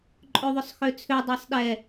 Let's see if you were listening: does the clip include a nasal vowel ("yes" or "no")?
no